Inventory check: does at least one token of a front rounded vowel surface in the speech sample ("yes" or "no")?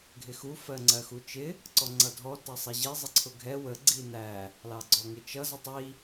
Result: no